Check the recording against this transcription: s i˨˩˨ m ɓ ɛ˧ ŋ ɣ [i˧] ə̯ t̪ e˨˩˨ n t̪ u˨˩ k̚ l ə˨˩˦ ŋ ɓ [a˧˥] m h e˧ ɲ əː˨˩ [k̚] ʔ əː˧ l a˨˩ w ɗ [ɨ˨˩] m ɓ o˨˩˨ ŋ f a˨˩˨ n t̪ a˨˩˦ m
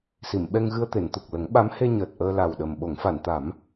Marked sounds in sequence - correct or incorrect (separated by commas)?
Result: incorrect, correct, incorrect, incorrect